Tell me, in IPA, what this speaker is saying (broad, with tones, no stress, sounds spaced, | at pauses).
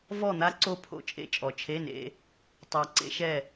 v ɔ˥˨ n̪ a˦˥ ǀ o˥˨ pʰ o̰˦˥ t͡ʃʼ ḛ˥˨ t͡ʃʼ ɔ˨˩ t͡ʃʰ e˧˥˧ n ḛ˨˦ | tˤ a˨˩ ǀ ḛ˦˥ ʃ ɛ˥˨